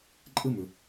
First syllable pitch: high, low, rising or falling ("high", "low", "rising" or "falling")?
high